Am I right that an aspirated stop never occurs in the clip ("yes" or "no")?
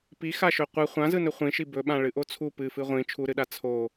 no